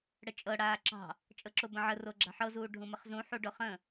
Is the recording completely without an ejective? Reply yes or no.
no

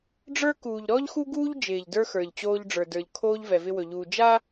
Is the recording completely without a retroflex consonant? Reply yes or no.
no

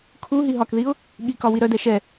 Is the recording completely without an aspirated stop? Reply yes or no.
no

